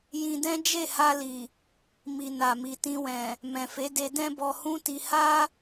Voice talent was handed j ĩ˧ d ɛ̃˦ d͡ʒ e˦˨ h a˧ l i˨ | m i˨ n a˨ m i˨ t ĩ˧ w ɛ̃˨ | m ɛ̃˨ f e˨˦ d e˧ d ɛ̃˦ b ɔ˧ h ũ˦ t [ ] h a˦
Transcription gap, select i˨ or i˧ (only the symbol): i˧